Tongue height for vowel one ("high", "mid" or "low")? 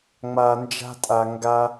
low